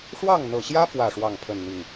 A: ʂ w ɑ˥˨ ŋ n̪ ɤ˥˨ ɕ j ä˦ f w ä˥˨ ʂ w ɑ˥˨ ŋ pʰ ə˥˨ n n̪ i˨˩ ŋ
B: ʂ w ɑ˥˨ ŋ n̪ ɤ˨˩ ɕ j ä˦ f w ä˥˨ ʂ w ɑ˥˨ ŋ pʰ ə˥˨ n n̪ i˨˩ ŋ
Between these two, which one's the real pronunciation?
B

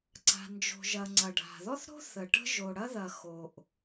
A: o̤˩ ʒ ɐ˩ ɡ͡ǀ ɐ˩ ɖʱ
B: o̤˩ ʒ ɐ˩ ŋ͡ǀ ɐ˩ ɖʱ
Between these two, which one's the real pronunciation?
B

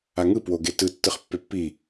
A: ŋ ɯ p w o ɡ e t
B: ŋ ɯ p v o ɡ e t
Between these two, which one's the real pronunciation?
A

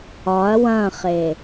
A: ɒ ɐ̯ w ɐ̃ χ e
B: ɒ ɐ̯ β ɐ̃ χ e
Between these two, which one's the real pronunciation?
A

